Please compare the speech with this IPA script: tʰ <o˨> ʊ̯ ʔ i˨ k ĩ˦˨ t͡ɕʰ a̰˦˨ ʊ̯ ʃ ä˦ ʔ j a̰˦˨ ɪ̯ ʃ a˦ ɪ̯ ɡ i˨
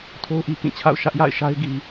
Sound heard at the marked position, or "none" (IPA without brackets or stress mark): o˦